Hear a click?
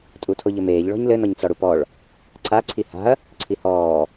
yes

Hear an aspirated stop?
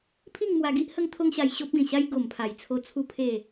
yes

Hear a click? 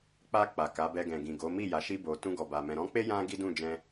no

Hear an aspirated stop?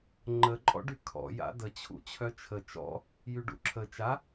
yes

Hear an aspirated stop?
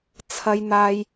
yes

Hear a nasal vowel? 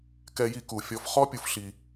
no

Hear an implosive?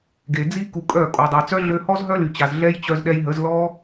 yes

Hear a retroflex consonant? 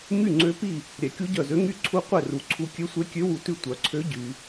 no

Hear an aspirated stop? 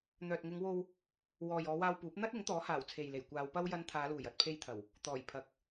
yes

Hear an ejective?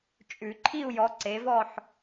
yes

